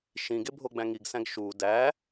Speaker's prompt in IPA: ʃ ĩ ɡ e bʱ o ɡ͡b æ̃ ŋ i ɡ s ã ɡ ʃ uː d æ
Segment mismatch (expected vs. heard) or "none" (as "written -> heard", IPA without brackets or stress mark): ã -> æ̃